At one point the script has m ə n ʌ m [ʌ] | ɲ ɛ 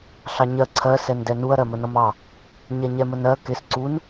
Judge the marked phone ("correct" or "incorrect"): incorrect